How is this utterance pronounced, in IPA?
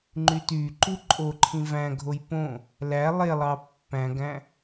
ŋ͡ǃytyǃu ǃʼoǃʰĩ væ̃ɡʱoj põ | læ lˠelˠɑ pːæ̃ɡæ̃

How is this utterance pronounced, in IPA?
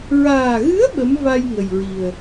ɹaː˨˩ɣɨ˧˥ə̯ ɓə˧˥m va˧j ŋə˨˩jɹi˨˩ə̯

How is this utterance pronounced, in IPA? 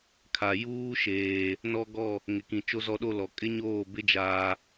kʰa˨ juː˦ʃeː˨ | nɔ˦ɡɔ˦˨ | ŋɪ˨kĩ˨t͡ʃo˦ zɔ˦ɗo˦lɔ˨ kʼɪ˦ɲoː˦˨bɪ˦ d͡ʒaː˦

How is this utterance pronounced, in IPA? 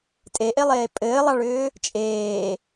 tʼeʔelˠeː pʼɘːlˠɑɭʏː | t͡ʃʼeː

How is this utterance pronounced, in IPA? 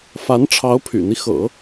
fa˧˥n ʈ͡ʂʰɑ˧˥ʊ̯pʰy̰˨˩n̪i˦ xɤ̰˨˩˦

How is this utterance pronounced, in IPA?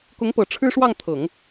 kʊ˧˥ŋpɤ˨˩ ʈ͡ʂʰɻ̩˥ʂwɑ˥˩ŋt̪ʰɤ˨˩˦ŋ

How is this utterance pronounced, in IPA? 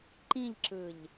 ǃĩʎǁɯʎ

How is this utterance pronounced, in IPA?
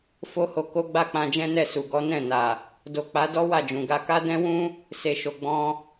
fo˦ho˧ ko˦ ɡ͡ba˦˨k͡pã˧d͡ʒɛ̃˦nɛ˦˨ su˨ ɡɔ˨˦nɛ̃˦˨na˨ | do˨k͡pa˨˦dɔ˦ wa˦˨d͡ʒũ˨ ɡa˧ka˦dɛ̃˦wũ˦ | se˨ ʃo˨ ɡ͡bɔ̃˧

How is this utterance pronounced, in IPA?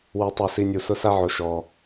wu˨ tˤa˨si˨ nʲu˨sʊ˦sa˦ʕo˨ ʃɔ˨

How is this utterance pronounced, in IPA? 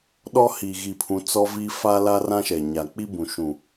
ɗɔ˦ hiː˨ɣi˨pʰũ˨˦ t͡sɔ˦vi˦ fa˦la˦rã˦ʃɛ˨ ɲa˨ k͡pi˦bũ˨ʃũ˨

